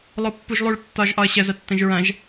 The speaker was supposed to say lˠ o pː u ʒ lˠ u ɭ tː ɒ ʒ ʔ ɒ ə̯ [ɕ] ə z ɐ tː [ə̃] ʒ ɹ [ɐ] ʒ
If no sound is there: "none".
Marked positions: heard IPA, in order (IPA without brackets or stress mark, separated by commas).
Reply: ɕ, ə̃, ɐ̃